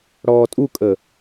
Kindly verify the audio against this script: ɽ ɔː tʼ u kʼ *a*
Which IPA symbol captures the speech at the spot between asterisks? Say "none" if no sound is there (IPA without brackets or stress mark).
ə